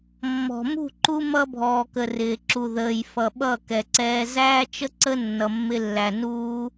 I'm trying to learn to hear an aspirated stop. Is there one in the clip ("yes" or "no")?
no